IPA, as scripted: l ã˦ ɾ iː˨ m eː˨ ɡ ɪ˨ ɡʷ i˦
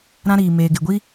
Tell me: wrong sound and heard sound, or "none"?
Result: l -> ɾ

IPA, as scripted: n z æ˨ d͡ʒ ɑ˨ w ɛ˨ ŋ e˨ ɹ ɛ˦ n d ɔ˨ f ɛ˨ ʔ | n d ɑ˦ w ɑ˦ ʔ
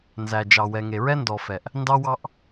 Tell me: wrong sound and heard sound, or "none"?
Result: none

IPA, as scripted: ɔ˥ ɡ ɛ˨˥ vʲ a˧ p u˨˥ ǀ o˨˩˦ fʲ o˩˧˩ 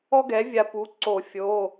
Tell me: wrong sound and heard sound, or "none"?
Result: none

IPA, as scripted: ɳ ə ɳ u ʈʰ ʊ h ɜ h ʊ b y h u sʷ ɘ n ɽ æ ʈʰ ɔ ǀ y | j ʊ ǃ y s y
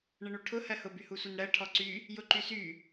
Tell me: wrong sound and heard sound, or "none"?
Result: æ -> ɜ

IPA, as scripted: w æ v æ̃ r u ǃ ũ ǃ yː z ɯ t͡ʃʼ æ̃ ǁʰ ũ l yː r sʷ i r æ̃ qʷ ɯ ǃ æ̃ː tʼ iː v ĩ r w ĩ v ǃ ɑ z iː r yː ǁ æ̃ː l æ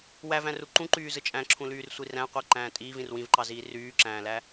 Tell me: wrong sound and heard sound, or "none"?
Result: none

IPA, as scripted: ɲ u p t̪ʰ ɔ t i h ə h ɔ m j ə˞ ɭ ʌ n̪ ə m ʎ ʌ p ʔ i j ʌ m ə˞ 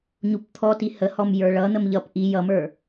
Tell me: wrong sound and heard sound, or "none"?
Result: none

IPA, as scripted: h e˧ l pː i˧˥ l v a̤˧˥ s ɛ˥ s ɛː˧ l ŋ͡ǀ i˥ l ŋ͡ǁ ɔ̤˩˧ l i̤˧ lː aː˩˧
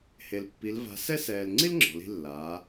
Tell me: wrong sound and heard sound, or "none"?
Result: none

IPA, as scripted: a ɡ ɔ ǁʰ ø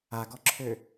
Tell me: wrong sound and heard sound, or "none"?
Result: none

